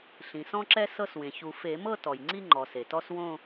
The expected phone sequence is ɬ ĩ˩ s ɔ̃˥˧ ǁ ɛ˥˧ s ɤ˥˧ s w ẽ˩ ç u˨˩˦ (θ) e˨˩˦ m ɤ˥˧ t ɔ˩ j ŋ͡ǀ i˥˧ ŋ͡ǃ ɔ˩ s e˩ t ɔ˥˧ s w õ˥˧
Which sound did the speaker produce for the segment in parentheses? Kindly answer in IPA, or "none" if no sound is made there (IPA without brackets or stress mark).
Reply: f